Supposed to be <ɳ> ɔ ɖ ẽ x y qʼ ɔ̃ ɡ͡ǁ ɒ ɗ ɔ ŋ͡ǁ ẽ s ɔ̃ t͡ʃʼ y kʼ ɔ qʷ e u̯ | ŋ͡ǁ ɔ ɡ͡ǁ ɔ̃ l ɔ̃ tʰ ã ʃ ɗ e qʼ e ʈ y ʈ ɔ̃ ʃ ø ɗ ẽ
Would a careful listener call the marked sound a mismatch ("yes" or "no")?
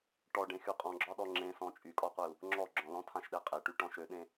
yes